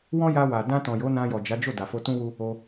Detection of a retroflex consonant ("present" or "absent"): absent